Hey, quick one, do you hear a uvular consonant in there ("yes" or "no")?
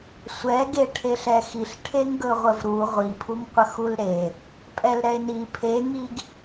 yes